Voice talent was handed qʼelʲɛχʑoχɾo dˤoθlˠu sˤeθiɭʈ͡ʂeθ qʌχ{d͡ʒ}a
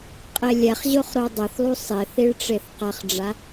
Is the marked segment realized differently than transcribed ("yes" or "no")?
yes